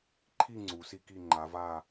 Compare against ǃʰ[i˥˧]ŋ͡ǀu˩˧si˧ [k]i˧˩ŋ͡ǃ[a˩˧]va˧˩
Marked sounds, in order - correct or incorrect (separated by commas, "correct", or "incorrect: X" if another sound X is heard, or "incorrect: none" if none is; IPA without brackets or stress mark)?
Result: correct, correct, correct